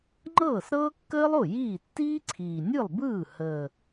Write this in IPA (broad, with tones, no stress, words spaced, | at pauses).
ŋ͡ǃɤː˥˩sɾɤː˥kːəː˥lˠo˥˩ jiː˥˩ tːiː˥ǀʰiː˨˩ nʲɯ˥˩lˠbɯː˥˩ həː˨˩